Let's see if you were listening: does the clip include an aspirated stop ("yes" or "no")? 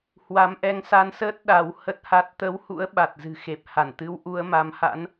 no